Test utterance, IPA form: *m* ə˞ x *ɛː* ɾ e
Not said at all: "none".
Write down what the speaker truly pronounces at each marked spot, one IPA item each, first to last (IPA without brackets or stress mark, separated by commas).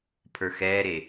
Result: pʰ, ɛː